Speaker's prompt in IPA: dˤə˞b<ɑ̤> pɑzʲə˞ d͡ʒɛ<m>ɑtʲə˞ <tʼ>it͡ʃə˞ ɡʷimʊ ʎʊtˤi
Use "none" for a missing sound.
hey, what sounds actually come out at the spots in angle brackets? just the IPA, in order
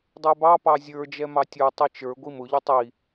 ɑ, m, tˤ

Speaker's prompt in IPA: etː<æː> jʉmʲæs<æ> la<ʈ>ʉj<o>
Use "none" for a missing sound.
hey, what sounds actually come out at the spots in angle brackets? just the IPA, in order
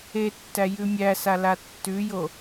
æ, a, tː, o

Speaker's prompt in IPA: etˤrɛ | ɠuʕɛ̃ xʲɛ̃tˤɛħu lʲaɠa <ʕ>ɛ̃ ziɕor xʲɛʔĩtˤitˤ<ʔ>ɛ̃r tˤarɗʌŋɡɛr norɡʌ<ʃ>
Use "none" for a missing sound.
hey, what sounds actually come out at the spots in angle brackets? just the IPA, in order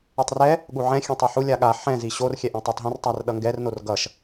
ħ, ɦ, ʃ

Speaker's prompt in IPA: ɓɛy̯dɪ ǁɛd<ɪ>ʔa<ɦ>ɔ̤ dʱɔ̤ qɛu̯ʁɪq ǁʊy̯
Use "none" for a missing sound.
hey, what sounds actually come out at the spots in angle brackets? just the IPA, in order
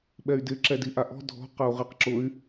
i, ʔ

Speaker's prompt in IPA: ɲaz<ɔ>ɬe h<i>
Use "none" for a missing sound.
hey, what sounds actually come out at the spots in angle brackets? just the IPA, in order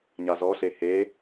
ɔ, e

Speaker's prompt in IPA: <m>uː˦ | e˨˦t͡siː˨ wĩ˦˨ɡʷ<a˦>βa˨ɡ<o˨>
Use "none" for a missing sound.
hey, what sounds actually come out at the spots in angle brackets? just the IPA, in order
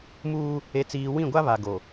m, a˦, o˨

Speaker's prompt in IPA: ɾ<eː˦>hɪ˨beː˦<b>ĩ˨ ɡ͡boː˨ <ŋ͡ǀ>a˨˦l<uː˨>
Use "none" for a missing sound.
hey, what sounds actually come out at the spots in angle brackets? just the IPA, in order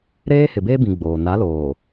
eː˦, b, n, oː˨

